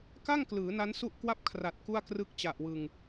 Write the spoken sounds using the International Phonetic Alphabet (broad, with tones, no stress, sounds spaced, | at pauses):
k a˥˩ ŋ k l ɯː˩˦ n a˦˥ n s u˥˩ ʔ k w a˥˩ p̚ kʰ r a˨˩ t̚ k u˥˩ a̯ k r ɯ˥˩ k̚ t͡ɕ a˨˩ ʔ w ɯ˨˩ ŋ